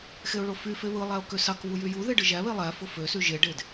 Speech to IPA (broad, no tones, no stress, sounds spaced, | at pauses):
x e ʊ̯ ɭ o f y f e β ɯ lˠ æ ʊ̯ k ø s ɑ k β u j y j u ð e ɖ ɯ ʒ æ β e lˠ æ f o f ø s y ʒ e ɖ e d